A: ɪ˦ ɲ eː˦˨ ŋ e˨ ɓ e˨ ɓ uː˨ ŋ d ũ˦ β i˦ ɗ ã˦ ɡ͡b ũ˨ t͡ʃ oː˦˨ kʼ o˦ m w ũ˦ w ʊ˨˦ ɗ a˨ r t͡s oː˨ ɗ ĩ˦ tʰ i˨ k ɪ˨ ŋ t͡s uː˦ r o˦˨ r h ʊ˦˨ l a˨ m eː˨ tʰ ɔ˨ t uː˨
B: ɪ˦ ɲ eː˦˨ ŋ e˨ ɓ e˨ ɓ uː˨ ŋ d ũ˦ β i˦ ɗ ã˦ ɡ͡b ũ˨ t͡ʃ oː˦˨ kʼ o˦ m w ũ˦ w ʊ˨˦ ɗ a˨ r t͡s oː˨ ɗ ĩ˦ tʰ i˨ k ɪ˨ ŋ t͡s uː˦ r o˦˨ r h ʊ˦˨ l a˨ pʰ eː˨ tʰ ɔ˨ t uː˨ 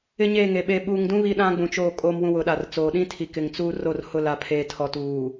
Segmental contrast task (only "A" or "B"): B